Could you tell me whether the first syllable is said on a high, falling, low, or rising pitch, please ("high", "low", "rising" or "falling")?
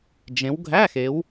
rising